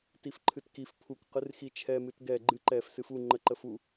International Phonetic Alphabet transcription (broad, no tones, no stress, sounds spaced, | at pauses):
t i f ǃʰ ɨ t k i f pʰ u k q ɨ r x i t͡ʃʰ ɛ m ɨ t ɡ ɛ ɡ͡ǃ ɨ ǃ ɛ f s ɨ f u ŋ͡ǃ ə ǃ ə f u